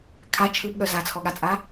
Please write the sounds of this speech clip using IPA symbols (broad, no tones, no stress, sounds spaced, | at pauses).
kʰ a t͡ʃʰ ɯ b ɠ œ z a t͡sʰ ɔ ɠ a t͡sʼ a